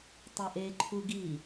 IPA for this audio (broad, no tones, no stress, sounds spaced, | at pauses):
tˤ e ʔ e ǃʰ u ɡ i